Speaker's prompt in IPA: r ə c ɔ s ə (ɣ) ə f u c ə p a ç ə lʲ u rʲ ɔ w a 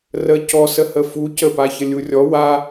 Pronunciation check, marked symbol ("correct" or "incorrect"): incorrect